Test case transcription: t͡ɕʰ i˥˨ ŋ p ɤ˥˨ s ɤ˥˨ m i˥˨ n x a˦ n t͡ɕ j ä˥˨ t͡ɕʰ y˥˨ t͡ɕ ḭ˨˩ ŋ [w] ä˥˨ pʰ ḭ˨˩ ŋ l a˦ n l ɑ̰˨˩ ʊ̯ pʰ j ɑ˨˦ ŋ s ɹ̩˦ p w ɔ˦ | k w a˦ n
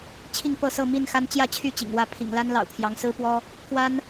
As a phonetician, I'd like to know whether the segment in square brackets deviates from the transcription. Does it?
no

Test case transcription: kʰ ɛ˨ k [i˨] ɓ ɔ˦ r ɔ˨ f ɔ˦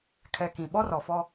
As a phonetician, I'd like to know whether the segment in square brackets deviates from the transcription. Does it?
yes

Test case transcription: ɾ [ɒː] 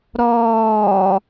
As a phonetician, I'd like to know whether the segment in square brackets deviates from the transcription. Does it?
no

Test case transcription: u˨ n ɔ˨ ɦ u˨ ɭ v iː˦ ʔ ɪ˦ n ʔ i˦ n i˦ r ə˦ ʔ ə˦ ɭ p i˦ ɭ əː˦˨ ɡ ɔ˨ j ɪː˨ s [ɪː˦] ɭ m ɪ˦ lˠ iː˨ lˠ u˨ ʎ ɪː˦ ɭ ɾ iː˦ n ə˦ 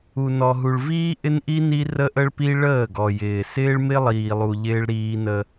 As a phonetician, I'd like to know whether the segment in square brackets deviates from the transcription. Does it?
no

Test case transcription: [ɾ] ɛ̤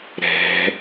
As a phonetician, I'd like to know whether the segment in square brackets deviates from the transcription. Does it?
no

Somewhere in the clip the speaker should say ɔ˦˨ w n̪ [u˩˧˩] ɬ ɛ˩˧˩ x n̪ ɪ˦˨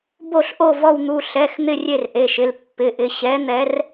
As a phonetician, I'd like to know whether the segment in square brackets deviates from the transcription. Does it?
no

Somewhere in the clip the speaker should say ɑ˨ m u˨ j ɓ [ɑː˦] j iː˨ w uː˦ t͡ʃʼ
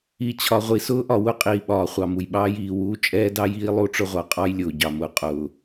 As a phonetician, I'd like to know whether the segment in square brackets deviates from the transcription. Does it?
no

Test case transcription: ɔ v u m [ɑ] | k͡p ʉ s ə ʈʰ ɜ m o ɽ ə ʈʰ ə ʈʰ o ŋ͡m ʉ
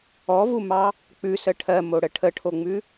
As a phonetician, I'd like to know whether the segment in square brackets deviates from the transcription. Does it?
no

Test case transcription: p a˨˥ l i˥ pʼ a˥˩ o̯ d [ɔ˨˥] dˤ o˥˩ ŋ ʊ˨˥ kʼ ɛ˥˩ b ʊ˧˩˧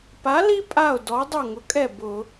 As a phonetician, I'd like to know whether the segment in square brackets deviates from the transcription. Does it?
no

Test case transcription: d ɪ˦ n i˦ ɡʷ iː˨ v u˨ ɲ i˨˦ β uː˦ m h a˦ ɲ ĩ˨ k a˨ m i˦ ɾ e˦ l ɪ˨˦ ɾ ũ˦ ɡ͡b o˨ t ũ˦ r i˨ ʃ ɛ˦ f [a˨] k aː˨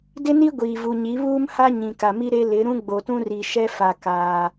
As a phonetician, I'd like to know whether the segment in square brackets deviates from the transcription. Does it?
no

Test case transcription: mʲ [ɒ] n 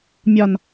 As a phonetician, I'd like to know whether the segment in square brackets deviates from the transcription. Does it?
no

